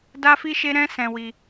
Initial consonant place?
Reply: alveolar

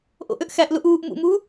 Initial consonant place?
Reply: glottal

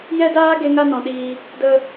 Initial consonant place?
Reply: palatal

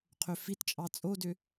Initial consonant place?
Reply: uvular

